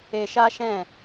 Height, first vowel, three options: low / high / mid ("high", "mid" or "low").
mid